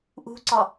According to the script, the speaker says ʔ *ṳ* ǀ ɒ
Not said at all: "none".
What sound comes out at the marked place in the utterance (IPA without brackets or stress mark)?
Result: ṳ